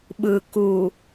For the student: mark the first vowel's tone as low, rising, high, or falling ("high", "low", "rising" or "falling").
low